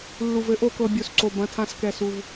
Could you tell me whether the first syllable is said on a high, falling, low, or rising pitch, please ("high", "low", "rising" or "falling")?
low